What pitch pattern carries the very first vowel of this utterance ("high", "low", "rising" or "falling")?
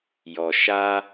low